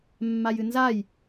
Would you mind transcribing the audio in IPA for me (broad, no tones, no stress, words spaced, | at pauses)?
mːajɨnzaj